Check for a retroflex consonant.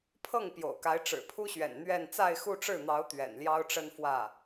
present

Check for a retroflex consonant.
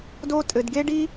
present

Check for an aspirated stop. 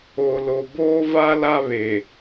absent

